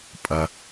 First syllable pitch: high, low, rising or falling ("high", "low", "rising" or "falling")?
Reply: low